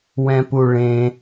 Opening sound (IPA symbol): w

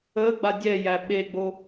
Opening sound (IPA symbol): ə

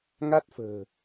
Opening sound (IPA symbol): ŋ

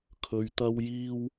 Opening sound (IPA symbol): kʰ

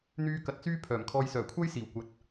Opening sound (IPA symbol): n̪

